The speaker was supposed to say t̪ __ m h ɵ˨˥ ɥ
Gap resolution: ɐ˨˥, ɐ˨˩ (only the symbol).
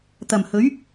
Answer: ɐ˨˩